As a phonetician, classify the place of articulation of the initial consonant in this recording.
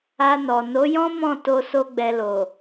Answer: alveolar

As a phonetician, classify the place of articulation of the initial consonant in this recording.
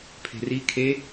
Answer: labial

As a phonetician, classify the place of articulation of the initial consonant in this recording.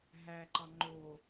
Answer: glottal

